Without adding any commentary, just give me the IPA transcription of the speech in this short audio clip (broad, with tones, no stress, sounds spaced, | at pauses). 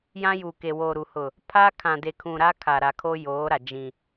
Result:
j ã˦ j uː˨ k e˨ w oː˨ ɾ u˨ h ʊ˨ | pʰ a˦ kʰ ã˨ d e˨ kʰ ũ˨ ɾ a˦ kʰ a˨ ɾ a˨ kʰ o˦ j oː˨˦ ɾ a˨ d͡ʒ ĩ˨